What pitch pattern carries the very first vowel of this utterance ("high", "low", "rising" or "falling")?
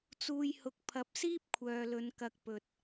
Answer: low